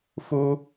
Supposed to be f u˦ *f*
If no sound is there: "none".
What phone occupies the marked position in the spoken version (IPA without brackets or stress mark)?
none